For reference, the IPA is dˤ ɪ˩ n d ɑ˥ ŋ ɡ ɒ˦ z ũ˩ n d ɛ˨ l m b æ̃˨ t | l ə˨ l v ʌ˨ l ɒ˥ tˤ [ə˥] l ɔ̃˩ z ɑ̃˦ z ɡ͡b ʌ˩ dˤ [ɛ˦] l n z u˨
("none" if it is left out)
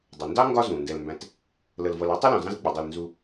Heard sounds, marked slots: ʌ˥, ɛ˨

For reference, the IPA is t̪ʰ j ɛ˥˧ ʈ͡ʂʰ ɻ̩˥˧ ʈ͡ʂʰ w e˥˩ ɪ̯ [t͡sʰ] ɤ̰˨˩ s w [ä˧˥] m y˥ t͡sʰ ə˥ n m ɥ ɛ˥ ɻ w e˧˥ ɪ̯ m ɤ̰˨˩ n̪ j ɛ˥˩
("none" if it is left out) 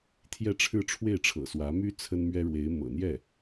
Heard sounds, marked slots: ʈ͡ʂʰ, ä˧˥

